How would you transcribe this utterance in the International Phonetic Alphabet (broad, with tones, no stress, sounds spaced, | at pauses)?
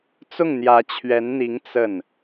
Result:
t͡s ʊ˥˩ ŋ n̪ j ä˧˥ t͡ɕʰ ɥ ɛ˧˥ n n̪ i˧˥ ŋ t͡s ə˥˩ n